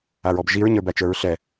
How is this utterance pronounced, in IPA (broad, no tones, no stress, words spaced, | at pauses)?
aɹɔbʒiɹ ɲə˞bæt͡ʃə˞ɹɬɛ